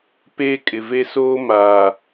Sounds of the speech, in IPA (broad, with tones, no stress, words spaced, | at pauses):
peː˦kʼɪ˨ve˦ soː˦ maː˨